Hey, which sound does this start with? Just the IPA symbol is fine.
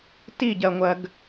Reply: t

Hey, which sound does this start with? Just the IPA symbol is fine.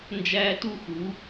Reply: n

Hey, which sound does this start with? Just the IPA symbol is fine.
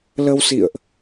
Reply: l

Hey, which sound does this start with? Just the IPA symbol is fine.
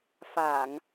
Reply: f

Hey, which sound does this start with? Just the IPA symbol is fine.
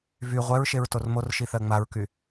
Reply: v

